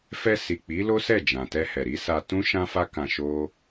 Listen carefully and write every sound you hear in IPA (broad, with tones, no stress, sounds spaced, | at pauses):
f ɛ˧ s i˨ k͡p i˨˦ l o˦ s ɛ˦˨ d͡ʒ ã˨ t ɛ˧ h ɛ˨ ɾ i˨˦ s a˧ t ũ˦ ʃ ã˦ f a˦ k ã˧ ʃ o˦